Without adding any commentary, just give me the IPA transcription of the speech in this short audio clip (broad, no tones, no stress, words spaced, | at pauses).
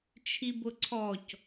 t͡ʃʰibʊǀʰɔc